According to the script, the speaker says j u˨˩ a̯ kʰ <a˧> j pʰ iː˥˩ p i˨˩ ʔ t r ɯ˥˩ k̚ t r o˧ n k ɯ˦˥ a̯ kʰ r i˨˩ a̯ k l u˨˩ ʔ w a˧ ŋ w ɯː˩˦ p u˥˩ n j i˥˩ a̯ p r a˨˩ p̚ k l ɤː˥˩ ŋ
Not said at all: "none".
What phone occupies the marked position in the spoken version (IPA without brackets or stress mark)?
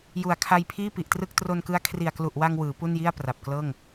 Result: a˧